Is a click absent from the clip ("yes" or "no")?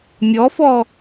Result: yes